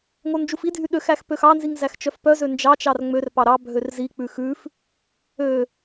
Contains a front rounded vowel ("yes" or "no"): yes